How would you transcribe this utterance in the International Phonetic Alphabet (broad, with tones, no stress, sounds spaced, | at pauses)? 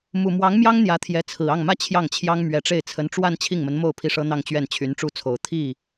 m u˨˩ m w ɑ˧˥ ŋ m j ɑ˥ ŋ n̪ j ä˧˥ t̪ʰ j ɛ˧˥ t͡sʰ ɹ̩˨˩ ɑ˥˩ ŋ m ä˥ t͡ɕʰ j ɑ˥˩ ŋ t͡ɕʰ j ɑ˥ ŋ m ɥ ɛ˧˥ ʈ͡ʂ e˥˩ ɪ̯ t͡sʰ ə˧˥ n ʈ͡ʂ w a˥˧ n t͡ɕʰ i˥˩ ŋ m ə˧˥ n m o˥˩ ʊ̯ pʰ i˥ ʂ ɤ˥ n̪ ɑ˥˧ ŋ t͡ɕ ɥ ɛ˥˩ n t͡ɕʰ y˧˥ n ʈ͡ʂ u˥˩ t͡sʰ o˨˩ ʊ̯ t̪ʰ i˥˩